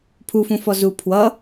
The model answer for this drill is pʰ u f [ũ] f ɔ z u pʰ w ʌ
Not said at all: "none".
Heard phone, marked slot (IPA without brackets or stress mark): ũ